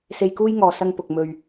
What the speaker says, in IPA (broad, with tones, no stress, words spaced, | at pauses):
se˧jkuː˥jŋɔː˨ sɐ˥ŋpʊ˨k̚ mɵ˨ɥ